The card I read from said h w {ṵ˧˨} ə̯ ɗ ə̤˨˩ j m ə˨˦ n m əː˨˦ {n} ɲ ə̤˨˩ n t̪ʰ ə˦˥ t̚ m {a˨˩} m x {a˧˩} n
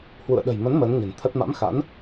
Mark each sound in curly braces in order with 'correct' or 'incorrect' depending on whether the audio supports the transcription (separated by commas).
correct, correct, incorrect, incorrect